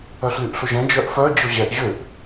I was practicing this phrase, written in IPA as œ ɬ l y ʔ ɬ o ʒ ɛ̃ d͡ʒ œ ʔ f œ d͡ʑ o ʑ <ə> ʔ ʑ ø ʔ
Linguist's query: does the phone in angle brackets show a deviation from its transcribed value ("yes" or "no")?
yes